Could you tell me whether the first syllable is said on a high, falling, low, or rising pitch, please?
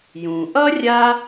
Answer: low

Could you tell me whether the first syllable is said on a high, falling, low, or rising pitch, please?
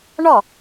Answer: falling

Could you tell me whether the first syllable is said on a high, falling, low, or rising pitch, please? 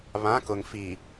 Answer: rising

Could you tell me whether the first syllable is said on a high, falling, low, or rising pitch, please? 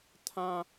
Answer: high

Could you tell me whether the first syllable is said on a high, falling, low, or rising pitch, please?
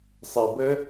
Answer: low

